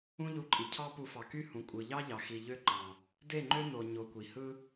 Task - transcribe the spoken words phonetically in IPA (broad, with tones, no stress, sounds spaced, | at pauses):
ũ˦ ʎ u˧ ǃʼ i˨ cʰ ɑ˦ p u˧ f ɑ˨ k y˦ h ũ˨ kʷʼ ɯ˨ ʎ ɑ˦ ʎ ɑ˨ x i˨ ʎ ø˦ ǃ ɑ̃˨ | d e˦˨ ŋ͡ǃ ø˦ n o˨ ɲ o˧ kʷ i˨ h ɯ˦